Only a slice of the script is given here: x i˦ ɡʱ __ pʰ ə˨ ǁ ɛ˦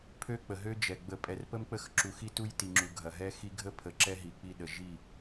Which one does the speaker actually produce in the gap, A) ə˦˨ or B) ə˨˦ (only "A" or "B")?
A